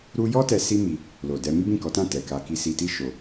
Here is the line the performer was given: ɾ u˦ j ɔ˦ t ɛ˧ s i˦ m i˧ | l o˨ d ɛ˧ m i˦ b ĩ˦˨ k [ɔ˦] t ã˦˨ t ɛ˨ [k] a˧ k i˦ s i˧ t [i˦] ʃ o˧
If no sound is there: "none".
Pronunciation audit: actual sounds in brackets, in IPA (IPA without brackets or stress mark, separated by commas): ɔ˨˦, k, i˦